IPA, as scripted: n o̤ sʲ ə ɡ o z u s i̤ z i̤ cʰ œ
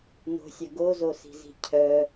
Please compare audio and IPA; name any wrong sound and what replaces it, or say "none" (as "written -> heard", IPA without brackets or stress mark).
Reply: u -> o